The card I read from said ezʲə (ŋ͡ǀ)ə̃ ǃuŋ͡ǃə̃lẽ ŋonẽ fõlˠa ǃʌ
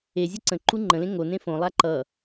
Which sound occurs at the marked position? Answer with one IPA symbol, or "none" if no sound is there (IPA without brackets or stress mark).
ǀ